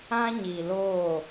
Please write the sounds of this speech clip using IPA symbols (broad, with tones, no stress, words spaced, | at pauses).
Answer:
ã˦ɲi˨loː˦˨